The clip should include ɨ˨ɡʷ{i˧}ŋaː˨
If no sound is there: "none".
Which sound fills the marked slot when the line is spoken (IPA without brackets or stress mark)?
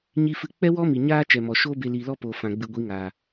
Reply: i˨˦